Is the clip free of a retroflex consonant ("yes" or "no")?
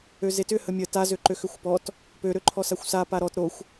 yes